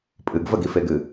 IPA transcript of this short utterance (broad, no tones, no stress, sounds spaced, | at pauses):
pʼ ɨ ɡ v ə ɡ i f e ɡ ɨ